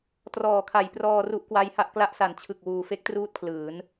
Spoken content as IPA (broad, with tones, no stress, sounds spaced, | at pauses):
t r ɔː˩˦ kʰ a˩˦ j p r ɔː˧ r u˦˥ ʔ k w a˦˥ j h a˥˩ ʔ k l a˦˥ ʔ s a˩˦ n t͡ɕʰ ɯ˨˩ k̚ w uː˨˩ f e˦˥ k̚ t r uː˥˩ t̚ kʰ l ɯː˩˦ n